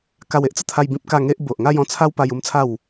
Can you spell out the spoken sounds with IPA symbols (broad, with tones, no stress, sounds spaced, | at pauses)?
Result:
k a˧ w e˦ ʔ t͡s ə˥˧ t̪ʰ a˧ j b ĩ˦ p̚ k a˥˧ ŋ e˦ ʔ b o˨ ʔ ŋ a˥˧ j ɔ̃˥˧ t͡sʰ a˦ w p a˧ j u˦ m t͡sʰ a˥˧ w